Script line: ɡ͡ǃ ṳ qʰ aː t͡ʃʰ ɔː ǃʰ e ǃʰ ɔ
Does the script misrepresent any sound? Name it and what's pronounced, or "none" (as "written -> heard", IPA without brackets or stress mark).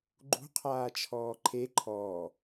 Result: none